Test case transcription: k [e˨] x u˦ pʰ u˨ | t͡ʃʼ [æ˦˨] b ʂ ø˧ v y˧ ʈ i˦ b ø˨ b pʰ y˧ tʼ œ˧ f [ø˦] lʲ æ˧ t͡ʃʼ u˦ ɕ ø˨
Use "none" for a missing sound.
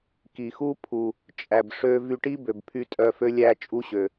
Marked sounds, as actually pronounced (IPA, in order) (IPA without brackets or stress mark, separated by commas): i˨, æ˨, ø˦